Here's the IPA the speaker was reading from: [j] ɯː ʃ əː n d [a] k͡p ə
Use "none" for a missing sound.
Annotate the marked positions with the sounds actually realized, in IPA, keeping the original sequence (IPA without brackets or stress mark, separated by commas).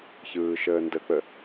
ç, ə